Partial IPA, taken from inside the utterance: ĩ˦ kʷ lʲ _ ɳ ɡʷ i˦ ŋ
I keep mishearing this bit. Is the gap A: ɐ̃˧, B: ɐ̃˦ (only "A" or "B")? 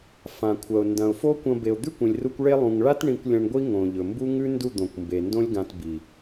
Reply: A